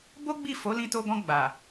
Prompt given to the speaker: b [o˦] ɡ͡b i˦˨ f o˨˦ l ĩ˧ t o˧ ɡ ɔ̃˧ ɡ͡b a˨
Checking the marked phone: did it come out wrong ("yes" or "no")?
no